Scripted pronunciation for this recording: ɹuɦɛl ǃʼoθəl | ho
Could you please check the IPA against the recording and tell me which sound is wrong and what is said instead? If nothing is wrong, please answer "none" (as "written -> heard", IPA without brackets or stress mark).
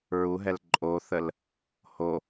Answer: none